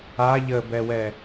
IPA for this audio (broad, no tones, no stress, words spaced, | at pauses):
a ʎəbɛwɛ